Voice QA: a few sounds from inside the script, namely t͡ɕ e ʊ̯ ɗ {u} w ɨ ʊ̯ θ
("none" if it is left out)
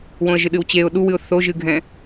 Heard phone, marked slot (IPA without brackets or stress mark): u